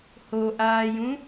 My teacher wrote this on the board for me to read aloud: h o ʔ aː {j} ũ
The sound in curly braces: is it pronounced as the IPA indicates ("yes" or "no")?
yes